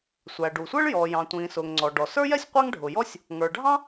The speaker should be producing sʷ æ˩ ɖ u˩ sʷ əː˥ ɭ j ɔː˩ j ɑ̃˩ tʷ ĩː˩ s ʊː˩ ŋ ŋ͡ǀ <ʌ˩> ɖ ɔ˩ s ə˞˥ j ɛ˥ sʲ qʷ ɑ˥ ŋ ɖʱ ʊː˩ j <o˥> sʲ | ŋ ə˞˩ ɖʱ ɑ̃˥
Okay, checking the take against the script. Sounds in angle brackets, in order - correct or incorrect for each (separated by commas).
incorrect, incorrect